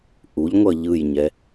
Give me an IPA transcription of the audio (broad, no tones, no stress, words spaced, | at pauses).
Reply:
ʔuʎŋʷʌ ʎɯjɲɛ